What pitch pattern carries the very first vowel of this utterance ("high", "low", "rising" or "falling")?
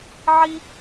high